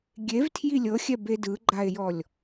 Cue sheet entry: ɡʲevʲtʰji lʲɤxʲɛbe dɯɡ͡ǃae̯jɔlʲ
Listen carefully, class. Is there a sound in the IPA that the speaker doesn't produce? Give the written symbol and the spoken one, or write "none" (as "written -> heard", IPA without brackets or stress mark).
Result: vʲ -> v